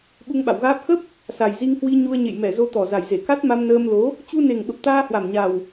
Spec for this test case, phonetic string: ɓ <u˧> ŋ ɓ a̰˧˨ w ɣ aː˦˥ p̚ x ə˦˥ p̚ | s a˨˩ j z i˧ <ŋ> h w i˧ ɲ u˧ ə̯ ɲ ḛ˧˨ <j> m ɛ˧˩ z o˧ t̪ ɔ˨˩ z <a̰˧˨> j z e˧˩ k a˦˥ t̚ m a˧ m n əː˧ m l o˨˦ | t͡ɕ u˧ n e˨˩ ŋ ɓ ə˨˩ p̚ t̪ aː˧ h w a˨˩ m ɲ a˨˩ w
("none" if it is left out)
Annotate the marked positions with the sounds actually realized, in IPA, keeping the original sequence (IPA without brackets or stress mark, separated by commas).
u˧, ŋ, j, a˨˩